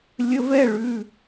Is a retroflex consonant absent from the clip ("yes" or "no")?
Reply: no